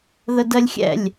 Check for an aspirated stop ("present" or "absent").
absent